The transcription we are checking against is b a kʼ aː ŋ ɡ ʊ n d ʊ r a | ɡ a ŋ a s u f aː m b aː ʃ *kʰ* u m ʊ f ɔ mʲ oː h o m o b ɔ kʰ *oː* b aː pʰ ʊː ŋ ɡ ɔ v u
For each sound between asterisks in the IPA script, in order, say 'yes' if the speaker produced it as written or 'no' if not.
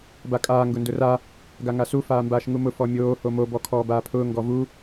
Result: no, no

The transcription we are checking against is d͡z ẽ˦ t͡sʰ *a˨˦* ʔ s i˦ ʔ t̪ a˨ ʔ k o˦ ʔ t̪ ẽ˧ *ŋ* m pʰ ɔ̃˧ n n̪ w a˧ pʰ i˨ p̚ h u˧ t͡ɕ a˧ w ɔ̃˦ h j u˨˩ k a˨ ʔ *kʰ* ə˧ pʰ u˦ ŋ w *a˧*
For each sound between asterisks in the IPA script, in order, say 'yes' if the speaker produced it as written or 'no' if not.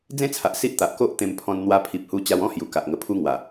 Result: no, no, no, no

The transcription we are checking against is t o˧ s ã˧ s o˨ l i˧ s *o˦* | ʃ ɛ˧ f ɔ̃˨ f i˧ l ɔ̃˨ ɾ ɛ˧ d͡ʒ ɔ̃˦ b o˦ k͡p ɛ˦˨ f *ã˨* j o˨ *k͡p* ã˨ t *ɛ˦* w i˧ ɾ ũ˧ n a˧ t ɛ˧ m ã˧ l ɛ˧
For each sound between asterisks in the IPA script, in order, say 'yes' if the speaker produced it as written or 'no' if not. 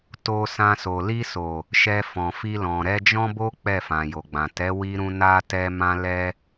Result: no, yes, no, no

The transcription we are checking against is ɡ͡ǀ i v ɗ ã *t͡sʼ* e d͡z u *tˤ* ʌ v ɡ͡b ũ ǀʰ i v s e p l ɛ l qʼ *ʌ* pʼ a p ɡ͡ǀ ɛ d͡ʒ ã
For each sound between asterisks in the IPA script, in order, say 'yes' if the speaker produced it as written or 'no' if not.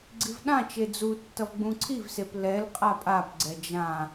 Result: no, no, no

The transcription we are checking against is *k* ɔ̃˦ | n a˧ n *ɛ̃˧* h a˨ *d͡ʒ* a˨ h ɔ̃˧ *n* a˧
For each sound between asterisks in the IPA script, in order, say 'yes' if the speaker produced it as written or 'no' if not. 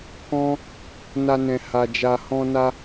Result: yes, no, yes, yes

